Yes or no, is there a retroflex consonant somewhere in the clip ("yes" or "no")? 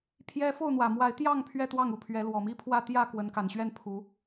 no